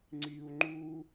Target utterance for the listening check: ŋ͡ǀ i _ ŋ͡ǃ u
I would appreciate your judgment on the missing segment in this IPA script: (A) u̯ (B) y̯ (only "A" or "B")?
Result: A